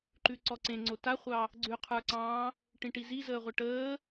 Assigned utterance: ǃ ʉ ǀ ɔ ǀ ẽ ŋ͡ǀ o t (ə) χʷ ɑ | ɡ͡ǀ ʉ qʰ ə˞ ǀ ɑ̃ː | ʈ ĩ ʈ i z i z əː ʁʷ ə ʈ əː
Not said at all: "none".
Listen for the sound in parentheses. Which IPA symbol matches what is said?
a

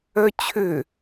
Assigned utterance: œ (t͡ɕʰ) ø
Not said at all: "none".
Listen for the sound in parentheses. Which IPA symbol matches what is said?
t͡ɕʰ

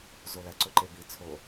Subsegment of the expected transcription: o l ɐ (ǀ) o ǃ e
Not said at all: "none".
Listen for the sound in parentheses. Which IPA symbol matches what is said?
ǀ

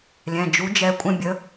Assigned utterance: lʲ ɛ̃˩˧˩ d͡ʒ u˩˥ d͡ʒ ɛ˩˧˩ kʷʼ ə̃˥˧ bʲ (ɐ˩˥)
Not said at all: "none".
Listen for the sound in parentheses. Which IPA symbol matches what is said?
ə˩˥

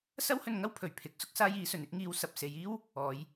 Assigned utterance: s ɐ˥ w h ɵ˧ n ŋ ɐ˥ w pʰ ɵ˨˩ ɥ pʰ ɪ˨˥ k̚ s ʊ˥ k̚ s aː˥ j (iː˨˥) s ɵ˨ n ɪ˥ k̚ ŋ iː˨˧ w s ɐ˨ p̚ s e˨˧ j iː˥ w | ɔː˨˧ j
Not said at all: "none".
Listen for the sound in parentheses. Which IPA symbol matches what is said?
iː˨˥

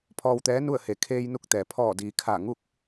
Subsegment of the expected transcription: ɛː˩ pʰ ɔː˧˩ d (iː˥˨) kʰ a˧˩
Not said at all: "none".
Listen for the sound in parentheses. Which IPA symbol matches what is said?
iː˩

